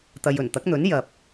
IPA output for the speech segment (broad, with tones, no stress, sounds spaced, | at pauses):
t̪ ɐ˨ j ɵ˨˩ n t̪ ɐ˨˥ k̚ n̪ ɵ˨˥ n j ɐ˨ p̚